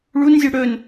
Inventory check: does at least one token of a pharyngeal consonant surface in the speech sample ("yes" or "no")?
no